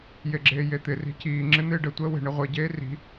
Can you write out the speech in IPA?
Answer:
jeɡ͡ǁeːjet̪ɪ ri̤ciː ŋ͡ǁɪn̪ɪːɖə tʷəːwe̤ ɳɪʁʷɪ ɟeːri̤

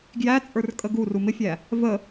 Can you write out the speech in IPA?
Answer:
ɡjæt͡sʼə˞r kʼəɡuru mɪfʲæ | və

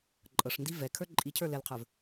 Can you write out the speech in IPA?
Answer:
ǃʼɤʂndi vɛkʰə˞ ǃʼicʰə˞ lɛlqʰə˞v

